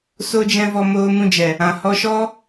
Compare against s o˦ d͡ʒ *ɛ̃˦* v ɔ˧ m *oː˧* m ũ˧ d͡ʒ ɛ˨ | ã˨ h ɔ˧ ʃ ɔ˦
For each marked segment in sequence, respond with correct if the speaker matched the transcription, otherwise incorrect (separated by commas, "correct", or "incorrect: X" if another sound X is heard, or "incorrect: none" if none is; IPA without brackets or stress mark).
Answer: correct, correct